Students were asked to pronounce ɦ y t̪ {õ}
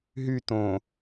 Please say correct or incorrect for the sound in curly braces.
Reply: correct